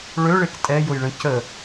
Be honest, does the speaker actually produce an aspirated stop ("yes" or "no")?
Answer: no